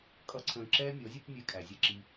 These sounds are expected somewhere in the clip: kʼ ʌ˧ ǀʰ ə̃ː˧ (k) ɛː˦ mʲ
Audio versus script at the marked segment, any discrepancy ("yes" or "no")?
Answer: yes